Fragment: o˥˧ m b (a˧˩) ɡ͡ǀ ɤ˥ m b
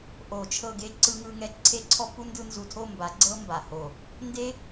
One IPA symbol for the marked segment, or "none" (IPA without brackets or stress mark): a˨˥